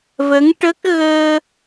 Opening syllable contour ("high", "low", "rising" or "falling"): rising